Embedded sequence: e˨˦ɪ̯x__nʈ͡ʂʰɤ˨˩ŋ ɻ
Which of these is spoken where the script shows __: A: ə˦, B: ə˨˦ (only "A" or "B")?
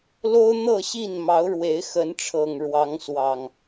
B